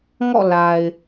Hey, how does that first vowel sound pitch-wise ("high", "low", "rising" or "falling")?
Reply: falling